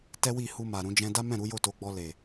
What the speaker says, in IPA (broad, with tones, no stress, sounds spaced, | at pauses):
t ɛ˦ w i˦˨ h u˧ m a˨ ɾ ũ˧ d͡ʒ ɛ̃˧ d a˦ m ɛ̃˦˨ ɾ u˨˦ j o˦˨ t o˨˦ ɡ͡b ɔ˧ l e˨